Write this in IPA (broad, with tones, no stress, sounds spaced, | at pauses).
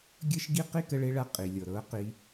ɡʲ əː˦ ʃ ɡ i˦ q i˦ k ə˧ ɭ e˧ ɭ a˧ qʼ i˨ lʲ ɤ˨ ɾ ɤ˨˦ q i˧